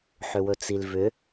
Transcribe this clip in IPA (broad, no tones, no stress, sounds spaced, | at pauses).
ħ ʏ w ɵ t͡s i l v ʏ